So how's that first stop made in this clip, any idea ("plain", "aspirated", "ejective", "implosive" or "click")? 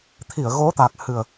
aspirated